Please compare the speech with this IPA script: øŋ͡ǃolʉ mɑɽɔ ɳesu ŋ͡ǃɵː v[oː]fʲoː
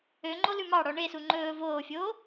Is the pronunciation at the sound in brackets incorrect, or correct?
correct